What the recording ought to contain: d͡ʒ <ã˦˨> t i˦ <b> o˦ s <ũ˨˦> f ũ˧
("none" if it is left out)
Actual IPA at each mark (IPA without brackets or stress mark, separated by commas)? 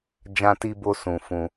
ã˦, b, ũ˧